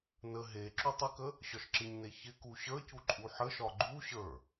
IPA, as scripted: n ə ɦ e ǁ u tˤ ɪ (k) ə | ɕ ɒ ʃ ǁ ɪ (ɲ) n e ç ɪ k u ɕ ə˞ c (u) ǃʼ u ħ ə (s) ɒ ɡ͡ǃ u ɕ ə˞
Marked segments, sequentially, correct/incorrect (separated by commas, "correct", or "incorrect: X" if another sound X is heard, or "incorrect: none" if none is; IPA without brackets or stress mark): correct, correct, correct, incorrect: ʃ